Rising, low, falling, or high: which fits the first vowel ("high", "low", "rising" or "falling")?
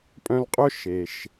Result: high